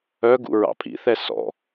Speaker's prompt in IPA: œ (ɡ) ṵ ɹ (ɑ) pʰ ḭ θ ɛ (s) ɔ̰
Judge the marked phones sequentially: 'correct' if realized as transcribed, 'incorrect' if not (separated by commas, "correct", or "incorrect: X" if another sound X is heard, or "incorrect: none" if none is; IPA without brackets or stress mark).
correct, incorrect: ɑ̰, correct